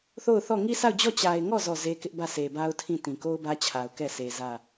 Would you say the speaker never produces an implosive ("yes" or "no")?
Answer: yes